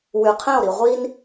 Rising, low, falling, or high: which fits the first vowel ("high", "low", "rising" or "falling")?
low